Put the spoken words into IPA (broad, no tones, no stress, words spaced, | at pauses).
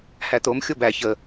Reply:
hæt̪om xʲobæ çə